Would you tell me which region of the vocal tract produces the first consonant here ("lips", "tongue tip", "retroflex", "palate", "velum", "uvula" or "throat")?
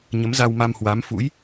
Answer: palate